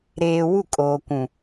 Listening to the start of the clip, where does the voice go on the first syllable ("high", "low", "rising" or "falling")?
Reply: low